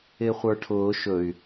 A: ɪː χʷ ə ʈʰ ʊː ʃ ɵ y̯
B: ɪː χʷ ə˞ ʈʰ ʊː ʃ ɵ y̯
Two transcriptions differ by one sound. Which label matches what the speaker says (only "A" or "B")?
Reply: B